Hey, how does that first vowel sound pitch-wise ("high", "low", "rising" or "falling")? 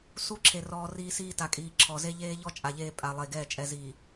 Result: high